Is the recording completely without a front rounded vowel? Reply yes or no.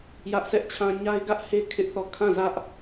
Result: yes